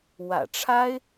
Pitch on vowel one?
low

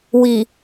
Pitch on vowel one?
low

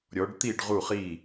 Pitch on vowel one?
rising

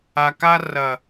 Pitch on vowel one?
low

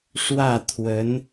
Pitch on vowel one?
falling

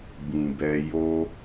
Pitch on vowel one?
low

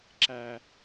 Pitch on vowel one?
low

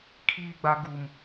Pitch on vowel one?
high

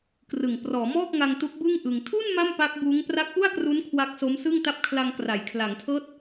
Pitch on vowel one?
low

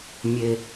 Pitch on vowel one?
low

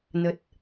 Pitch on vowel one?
low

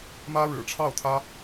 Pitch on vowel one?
high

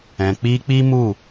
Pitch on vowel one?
low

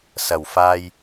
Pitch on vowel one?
low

